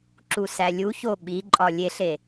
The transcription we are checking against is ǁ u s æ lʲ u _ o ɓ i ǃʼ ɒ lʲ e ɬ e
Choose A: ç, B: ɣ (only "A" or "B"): A